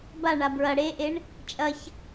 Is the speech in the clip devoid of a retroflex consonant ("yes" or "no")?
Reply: no